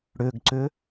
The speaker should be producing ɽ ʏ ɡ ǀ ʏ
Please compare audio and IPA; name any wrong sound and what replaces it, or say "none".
none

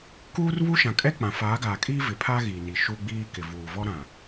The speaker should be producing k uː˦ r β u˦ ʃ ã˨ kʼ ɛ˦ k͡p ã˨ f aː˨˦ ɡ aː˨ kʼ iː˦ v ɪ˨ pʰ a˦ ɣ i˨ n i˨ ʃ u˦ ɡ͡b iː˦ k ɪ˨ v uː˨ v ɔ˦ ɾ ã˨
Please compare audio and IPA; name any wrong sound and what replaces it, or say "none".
none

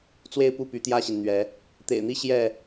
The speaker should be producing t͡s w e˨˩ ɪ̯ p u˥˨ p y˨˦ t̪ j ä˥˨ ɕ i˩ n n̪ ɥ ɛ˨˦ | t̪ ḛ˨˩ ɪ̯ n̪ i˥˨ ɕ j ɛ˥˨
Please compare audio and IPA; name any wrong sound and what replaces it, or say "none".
e˨˩ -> e˥˨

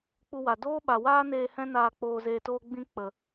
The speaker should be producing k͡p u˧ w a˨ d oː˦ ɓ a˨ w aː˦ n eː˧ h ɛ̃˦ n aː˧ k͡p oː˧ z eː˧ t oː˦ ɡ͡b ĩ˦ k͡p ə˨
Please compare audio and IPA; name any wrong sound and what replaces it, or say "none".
none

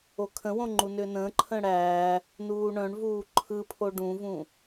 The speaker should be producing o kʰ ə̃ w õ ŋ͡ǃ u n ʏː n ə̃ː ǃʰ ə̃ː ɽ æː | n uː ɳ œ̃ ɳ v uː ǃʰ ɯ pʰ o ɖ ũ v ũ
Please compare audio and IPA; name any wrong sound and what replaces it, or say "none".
none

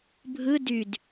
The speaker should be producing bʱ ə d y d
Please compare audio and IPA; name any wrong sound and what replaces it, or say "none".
ə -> ɯ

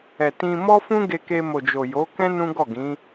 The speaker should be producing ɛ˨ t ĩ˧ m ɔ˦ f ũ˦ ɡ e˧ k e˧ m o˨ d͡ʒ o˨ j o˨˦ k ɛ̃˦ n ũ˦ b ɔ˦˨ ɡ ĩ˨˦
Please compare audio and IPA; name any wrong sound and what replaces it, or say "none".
b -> ɡ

